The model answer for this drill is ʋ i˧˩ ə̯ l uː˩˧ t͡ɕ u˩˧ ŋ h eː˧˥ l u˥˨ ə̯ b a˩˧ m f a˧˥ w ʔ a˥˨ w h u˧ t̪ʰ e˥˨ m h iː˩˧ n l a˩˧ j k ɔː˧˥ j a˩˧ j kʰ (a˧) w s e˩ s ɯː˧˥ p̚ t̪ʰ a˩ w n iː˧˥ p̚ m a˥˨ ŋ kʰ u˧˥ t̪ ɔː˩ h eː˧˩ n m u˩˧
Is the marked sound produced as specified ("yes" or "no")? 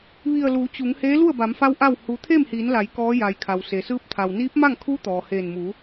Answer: no